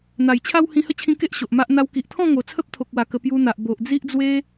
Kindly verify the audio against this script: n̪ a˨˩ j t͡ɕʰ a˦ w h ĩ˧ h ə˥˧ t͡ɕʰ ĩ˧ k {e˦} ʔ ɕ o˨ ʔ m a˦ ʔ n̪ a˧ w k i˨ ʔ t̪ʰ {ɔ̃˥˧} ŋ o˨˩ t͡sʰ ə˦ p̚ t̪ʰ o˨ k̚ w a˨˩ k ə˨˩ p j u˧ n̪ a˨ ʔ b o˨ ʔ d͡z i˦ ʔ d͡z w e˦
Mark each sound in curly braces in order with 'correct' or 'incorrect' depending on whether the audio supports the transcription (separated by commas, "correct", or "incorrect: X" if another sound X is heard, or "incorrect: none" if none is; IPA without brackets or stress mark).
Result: correct, correct